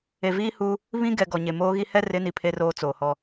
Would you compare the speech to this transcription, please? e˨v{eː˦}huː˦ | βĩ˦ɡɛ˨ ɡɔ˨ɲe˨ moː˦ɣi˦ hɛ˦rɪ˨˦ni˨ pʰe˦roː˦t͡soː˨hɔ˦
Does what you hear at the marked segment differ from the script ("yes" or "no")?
yes